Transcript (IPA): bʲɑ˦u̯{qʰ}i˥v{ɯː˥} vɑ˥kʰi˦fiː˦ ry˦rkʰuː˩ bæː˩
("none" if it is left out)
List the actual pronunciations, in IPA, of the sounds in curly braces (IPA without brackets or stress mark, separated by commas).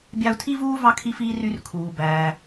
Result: tʰ, uː˥